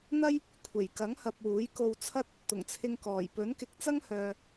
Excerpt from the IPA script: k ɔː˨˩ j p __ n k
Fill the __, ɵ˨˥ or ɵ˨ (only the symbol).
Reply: ɵ˨˥